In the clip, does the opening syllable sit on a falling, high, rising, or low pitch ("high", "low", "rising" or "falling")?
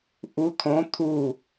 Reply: rising